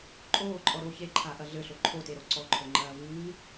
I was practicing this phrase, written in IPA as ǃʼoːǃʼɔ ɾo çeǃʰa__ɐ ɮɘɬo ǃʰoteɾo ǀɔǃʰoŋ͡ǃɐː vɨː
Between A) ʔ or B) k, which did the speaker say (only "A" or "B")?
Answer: A